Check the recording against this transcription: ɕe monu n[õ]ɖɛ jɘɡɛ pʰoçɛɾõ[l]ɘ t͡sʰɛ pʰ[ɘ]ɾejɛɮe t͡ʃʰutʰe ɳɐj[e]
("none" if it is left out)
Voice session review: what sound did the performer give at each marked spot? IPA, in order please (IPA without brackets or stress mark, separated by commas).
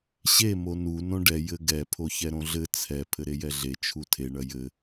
õ, ɮ, ɘ, ɘ